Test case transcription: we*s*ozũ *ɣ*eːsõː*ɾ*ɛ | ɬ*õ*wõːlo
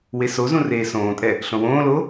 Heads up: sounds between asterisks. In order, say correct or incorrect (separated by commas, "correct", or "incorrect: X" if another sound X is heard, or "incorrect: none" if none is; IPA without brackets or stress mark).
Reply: correct, incorrect: r, incorrect: tʼ, correct